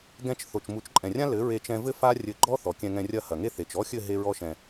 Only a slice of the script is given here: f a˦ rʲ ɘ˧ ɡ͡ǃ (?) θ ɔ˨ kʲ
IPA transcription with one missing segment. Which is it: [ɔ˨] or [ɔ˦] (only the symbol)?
ɔ˦